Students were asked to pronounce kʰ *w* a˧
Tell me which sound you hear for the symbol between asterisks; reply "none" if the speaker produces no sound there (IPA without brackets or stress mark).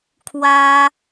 w